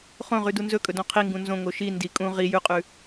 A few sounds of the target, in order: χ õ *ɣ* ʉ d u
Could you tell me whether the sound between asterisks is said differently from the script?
yes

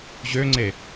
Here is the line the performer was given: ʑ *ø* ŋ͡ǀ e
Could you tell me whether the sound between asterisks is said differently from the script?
no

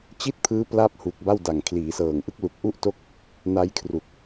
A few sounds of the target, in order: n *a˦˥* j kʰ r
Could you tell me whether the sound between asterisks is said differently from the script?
no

